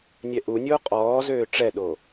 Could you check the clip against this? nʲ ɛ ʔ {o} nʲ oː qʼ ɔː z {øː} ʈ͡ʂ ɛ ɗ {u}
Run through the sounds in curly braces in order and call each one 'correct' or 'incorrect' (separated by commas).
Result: incorrect, correct, incorrect